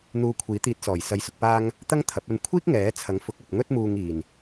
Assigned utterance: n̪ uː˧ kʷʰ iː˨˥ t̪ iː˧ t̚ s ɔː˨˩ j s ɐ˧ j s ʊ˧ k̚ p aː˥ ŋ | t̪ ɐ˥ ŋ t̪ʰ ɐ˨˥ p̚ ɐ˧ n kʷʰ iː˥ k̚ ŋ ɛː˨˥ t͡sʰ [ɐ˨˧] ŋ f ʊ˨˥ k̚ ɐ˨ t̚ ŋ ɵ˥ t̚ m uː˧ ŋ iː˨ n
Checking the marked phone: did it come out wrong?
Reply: yes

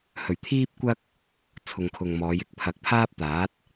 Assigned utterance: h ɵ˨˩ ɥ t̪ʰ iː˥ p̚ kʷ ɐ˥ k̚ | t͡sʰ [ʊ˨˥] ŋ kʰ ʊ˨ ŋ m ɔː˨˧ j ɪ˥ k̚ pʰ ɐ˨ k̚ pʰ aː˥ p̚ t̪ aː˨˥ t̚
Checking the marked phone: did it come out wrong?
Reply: yes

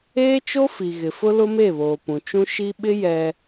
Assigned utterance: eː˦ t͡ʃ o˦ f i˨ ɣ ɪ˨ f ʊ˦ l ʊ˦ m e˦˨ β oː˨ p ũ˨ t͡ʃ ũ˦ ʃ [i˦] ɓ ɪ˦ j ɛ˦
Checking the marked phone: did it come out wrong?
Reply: no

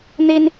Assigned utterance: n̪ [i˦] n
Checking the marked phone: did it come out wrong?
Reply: no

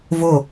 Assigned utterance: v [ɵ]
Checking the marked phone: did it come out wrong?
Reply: yes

